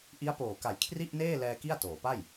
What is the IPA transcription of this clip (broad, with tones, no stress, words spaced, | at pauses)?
ʔi˦˥a̯poː˨˩ka˨˩j kʰri˥˩ʔneː˥˩lɛː˧ ki˥˩a̯toː˩˦pa˥˩j